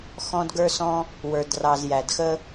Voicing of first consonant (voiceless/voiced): voiceless